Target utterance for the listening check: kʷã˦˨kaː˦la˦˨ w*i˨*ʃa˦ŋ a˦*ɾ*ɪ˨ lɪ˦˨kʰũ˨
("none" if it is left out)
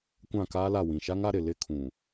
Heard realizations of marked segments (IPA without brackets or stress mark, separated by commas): ĩ˨, ɾ